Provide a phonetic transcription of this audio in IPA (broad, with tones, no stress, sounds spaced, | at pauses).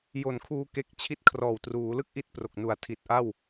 j o˨˩ n kʰ uː˧ k e˦˥ k̚ t͡ɕʰ i˥˩ t̚ kʰ r ɔː˨˩ w t r uː˩˦ l ɯ˥˩ k̚ ʔ i˥˩ t̚ p r o˨˩ k̚ n u˨˩ a̯ tʰ i˨˩ t̚ ʔ a˥˩ w